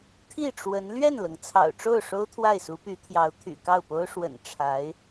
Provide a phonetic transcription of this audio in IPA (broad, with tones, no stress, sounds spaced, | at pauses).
t̪ʰ i˥˩ ʈ͡ʂ w ə˧˥ n l ɥ ɛ˥˩ n l ɤ˩ ŋ t͡sʰ ɑ̰˨˩ ʊ̯ ʈ͡ʂ o˥˩ ʊ̯ ʂ o˥ ʊ̯ t̪ʰ w a˥˩ ɪ̯ s u˧˥ p y˧˥ t̪ʰ j ɑ˧˥ ʊ̯ t̪ʰ y̰˨˩ k ɑ˥˩ ʊ̯ p o˥ ʊ̯ ʂ w ə̰˨˩ n ʈ͡ʂʰ a˧˥ ɪ̯